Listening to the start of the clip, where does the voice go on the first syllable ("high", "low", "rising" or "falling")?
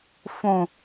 low